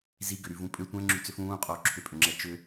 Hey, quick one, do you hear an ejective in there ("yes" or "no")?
yes